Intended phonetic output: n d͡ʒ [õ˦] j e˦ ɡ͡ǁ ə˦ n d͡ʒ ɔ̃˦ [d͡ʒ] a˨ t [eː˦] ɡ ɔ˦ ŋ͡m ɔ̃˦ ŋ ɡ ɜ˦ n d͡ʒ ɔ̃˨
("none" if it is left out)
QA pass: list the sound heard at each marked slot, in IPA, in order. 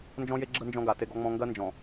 ɔ̃˦, ɡ, e˦

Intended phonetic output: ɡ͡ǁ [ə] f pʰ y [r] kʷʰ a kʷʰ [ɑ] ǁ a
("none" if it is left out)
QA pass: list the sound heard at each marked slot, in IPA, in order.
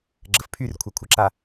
ə, r, ə

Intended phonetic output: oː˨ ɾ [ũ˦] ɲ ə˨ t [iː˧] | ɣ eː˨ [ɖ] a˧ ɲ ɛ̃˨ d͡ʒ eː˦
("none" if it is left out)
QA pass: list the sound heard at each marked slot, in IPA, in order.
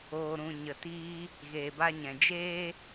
ũ˨, iː˧, b

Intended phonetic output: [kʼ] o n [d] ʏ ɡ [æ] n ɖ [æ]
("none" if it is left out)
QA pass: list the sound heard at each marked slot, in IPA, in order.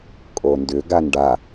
kʼ, d, a, a

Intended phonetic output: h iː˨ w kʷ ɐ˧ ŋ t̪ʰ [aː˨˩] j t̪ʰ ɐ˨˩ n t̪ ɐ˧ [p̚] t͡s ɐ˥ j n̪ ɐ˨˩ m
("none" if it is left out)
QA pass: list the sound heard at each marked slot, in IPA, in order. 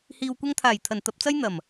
aː˨˩, p̚

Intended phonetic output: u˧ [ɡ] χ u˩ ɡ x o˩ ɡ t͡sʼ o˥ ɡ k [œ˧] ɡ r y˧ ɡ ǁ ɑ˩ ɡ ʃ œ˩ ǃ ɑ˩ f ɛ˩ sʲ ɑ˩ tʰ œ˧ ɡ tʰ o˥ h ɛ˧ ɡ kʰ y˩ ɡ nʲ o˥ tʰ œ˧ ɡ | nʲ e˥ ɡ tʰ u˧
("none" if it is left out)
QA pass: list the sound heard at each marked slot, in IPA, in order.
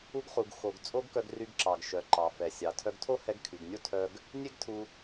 ɡ, œ˧

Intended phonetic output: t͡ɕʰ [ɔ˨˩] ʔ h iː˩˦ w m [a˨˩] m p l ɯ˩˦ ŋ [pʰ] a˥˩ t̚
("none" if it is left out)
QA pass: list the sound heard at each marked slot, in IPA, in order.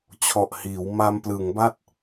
ɔ˨˩, a˧, b

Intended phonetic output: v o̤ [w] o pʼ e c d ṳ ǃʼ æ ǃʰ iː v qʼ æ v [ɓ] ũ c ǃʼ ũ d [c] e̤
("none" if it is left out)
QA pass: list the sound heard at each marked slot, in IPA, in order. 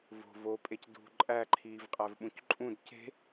v, ɓ, c

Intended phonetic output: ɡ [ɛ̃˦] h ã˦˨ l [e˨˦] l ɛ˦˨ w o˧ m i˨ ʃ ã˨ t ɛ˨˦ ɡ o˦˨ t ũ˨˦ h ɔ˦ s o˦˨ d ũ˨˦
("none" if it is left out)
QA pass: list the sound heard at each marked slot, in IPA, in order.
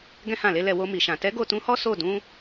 ɛ̃˦, e˨˦

